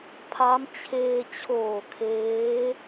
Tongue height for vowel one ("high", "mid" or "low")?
low